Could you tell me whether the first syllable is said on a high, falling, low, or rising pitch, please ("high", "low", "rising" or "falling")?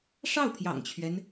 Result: falling